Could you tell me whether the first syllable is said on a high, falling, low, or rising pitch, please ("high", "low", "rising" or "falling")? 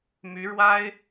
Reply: rising